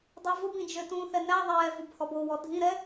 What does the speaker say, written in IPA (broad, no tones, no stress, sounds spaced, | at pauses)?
dˤ ɛ v ʊ b ĩ d͡ʒ ø t ũ θ ɛ n æ ðˤ ɛː v u b h ɔ b o w ɔ dʱ ĩ ɾ ɛ